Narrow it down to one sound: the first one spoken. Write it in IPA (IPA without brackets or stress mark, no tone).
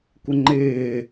kʷ